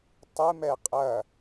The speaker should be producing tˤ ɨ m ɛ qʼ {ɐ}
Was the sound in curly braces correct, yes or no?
yes